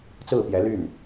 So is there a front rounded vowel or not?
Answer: yes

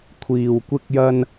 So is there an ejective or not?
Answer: no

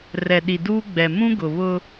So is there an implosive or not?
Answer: yes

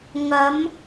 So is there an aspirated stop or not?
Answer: no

